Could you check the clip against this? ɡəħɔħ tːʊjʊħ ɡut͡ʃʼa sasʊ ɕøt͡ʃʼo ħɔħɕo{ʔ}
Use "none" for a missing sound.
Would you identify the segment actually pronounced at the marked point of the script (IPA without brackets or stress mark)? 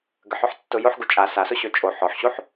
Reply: ħ